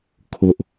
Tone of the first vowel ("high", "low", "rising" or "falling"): high